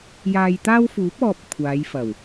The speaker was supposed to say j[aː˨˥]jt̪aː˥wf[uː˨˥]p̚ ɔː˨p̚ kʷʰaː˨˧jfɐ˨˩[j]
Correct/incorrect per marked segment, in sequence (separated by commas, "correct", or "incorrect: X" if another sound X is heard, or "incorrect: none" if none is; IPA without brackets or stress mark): incorrect: aː˧, correct, incorrect: w